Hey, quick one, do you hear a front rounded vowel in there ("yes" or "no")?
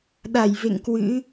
no